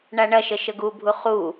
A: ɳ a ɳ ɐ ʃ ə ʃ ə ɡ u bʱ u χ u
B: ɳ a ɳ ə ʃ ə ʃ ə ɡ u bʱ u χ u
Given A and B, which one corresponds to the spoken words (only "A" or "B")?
A